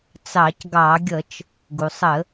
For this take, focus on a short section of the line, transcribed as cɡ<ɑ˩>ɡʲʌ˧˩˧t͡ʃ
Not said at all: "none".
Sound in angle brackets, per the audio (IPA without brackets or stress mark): ɑ˧˩˧